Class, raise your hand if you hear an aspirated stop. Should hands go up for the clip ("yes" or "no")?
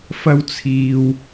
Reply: yes